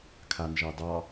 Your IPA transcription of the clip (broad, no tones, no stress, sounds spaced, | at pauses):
kʰ a n ʒ ɑ d ɑ